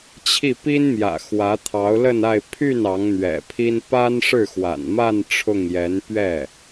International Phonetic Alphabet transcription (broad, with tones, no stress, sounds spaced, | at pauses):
t͡ɕʰ i˥˩ p i˥ n m j ä̰˨˩ x w ä˧˥ t̪ʰ ɑ˧˥ ʊ̯ l ə˥˧ n a˥˧ ɪ̯ pʰ y˥˩ n ɑ˧˥ ŋ n̪ ɥ ɛ̰˨˩ pʰ i˥ n p a˥ n ʂ ɻ̩˥˩ x w a̰˨˩ n m a˥˧ n ʈ͡ʂʰ ʊ˥˩ ŋ j ɛ˧˥ n p ɥ ɛ˥˩